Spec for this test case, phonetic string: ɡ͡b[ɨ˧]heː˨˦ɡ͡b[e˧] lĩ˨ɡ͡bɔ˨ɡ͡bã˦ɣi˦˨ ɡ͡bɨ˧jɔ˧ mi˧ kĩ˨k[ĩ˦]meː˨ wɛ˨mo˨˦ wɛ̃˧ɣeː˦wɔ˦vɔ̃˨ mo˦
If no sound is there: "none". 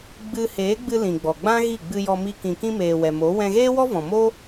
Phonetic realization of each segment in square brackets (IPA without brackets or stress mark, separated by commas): ɨ˧, ɨ˧, ĩ˧